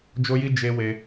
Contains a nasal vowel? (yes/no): no